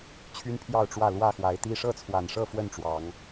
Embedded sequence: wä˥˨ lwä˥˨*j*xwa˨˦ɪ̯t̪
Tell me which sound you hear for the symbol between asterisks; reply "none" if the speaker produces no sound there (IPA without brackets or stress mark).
none